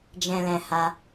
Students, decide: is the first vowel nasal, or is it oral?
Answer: nasal